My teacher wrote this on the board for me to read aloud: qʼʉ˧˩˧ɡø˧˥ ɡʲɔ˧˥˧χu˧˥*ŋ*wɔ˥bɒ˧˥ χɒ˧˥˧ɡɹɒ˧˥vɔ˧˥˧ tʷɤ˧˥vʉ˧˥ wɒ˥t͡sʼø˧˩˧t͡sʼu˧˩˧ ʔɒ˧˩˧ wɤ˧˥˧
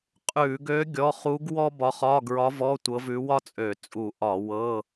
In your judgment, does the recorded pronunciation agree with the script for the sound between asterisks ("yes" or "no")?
no